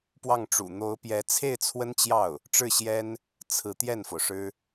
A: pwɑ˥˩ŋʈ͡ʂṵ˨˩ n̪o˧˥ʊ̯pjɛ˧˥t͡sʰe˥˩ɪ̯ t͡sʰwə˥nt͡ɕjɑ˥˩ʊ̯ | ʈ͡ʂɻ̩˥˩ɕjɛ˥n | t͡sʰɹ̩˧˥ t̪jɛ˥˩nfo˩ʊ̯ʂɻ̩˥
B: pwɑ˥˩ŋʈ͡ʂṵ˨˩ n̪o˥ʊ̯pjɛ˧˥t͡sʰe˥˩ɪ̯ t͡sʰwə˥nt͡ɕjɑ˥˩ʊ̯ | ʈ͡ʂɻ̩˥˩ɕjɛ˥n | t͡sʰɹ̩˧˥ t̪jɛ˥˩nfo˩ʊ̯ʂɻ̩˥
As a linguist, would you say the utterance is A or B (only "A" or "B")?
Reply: A